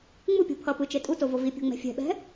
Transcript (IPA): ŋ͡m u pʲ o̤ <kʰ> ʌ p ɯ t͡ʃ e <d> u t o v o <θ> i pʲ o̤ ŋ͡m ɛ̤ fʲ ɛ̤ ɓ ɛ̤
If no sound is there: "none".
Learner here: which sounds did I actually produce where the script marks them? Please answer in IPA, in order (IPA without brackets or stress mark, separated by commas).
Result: pʰ, tʼ, v